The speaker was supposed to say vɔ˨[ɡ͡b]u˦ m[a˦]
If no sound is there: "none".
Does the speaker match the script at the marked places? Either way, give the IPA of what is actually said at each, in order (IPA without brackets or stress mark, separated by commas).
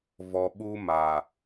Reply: ɓ, a˨